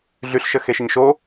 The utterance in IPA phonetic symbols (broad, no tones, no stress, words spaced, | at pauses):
ɮyɬʃə xeʃəɲʃo